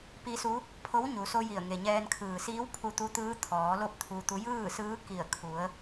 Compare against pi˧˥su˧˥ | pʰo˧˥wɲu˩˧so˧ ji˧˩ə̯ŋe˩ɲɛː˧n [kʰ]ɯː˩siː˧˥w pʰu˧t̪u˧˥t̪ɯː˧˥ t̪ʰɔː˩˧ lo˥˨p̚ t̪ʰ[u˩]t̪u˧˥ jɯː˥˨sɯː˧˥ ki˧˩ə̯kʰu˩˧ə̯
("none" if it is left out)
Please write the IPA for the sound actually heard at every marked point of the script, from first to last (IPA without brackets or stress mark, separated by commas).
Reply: kʰ, u˧